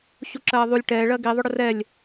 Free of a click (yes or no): no